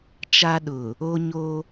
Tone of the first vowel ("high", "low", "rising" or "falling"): high